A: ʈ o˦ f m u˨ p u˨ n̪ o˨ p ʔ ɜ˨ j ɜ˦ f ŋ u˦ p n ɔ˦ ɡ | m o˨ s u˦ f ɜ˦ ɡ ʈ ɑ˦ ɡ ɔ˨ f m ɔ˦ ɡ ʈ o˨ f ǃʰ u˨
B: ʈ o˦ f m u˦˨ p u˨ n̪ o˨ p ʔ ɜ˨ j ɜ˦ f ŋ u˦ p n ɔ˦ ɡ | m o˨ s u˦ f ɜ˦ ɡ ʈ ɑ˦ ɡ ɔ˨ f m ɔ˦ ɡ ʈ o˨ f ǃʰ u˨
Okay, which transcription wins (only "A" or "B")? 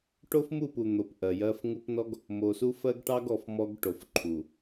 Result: B